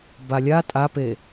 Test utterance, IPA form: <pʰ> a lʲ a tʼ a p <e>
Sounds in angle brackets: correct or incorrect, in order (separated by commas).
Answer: incorrect, correct